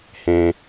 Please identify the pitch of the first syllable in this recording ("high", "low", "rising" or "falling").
low